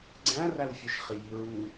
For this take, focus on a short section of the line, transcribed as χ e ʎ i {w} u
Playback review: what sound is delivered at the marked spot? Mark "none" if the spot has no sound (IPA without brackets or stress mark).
ɹ